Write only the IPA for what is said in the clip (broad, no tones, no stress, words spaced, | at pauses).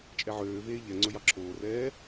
t͡ʃʼɛʕøːveː ʎɛŋ͡ǀɵ jɑǁʰoːrɛː